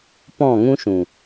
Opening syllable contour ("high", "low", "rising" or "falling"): falling